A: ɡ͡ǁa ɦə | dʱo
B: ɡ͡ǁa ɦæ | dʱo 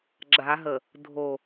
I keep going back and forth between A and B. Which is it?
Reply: A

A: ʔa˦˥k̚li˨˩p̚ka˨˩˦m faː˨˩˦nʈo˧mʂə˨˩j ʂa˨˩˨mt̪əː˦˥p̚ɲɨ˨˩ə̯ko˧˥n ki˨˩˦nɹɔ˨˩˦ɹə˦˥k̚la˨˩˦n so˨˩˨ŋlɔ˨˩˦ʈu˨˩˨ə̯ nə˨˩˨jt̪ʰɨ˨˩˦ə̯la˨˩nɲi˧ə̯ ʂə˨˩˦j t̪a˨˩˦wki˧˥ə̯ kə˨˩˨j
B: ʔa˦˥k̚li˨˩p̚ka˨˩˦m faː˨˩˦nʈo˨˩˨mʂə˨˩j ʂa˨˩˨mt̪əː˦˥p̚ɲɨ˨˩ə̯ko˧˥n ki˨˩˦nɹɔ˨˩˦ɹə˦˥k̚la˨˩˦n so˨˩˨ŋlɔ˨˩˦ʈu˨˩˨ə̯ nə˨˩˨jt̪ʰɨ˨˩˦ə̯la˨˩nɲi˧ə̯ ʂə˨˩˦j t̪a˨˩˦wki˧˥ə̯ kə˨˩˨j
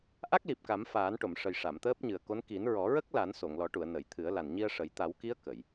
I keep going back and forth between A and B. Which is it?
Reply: B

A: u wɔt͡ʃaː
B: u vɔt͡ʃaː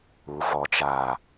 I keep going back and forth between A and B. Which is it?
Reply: B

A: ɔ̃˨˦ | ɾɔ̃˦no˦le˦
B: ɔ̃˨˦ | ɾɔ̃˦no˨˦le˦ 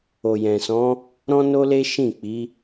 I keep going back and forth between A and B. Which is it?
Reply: A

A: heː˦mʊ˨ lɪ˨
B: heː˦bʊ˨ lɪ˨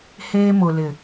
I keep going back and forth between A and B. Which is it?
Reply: A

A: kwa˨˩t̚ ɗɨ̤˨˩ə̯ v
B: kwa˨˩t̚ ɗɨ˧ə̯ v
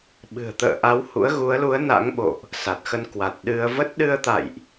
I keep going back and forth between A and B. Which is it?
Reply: B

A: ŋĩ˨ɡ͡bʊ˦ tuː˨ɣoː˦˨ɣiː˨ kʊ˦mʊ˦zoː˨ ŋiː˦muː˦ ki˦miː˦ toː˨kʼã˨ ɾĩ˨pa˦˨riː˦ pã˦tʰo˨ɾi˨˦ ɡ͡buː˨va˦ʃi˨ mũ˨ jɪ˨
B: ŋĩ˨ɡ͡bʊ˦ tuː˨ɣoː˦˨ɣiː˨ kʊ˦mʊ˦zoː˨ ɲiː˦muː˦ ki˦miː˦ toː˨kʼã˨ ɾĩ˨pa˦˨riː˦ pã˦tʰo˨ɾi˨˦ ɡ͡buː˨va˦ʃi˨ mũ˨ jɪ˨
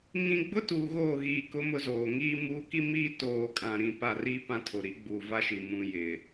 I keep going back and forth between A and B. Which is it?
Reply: A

